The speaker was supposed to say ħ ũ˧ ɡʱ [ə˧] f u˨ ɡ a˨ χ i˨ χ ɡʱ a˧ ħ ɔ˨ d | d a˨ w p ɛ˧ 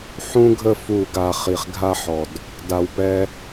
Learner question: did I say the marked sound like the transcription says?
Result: yes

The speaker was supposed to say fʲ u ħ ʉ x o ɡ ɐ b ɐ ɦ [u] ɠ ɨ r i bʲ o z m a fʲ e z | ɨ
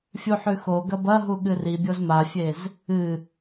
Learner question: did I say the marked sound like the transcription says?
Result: yes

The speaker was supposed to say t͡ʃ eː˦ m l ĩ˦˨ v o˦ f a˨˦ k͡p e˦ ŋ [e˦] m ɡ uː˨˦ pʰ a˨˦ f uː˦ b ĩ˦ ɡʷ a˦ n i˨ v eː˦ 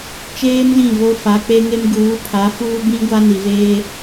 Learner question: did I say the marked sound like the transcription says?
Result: yes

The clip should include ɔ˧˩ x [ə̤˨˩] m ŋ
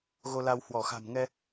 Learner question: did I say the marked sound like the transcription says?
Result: no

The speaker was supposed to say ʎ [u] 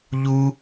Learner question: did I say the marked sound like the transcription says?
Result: yes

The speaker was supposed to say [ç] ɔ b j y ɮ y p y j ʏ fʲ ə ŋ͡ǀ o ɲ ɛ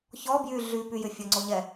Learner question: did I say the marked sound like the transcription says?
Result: yes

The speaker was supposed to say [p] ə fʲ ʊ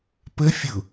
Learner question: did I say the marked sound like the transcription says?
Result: yes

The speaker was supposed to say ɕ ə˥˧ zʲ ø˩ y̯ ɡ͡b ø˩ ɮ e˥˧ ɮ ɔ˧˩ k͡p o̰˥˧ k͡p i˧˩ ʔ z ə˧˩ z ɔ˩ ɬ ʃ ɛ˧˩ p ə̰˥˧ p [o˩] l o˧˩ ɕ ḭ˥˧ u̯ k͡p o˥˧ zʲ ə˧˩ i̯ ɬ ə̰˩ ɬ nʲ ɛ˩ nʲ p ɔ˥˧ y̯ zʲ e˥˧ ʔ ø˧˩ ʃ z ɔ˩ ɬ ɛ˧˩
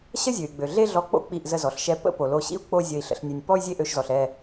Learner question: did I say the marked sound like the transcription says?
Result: yes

